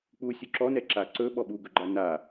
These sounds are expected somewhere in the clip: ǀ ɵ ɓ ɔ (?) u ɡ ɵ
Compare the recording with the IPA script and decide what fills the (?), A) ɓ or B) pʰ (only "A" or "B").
A